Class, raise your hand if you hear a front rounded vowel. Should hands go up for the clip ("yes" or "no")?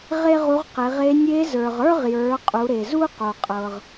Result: no